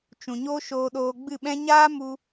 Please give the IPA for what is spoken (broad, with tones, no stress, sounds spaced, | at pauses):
t͡ʃ ũ˨ ɲ oː˦ ʃ oː˧ ɗ oː˧ ɡ͡b ɨ˦˨ ɓ ɛ̃˦ ɲ aː˦ m u˧